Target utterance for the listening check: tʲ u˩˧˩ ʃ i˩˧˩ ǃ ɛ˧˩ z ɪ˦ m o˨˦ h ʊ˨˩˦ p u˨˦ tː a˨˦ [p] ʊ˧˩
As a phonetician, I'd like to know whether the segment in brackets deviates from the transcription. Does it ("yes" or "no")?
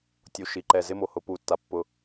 yes